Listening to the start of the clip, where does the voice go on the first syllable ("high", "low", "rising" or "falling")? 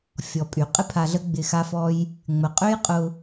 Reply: low